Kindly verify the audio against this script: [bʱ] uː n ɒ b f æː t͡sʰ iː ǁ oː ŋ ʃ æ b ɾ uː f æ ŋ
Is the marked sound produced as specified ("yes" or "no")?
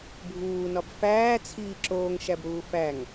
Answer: yes